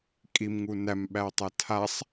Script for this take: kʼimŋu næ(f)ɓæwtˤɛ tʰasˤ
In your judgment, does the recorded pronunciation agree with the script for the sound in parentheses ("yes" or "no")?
no